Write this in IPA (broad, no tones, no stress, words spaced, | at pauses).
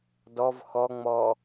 dɔv xɔŋ͡mɔ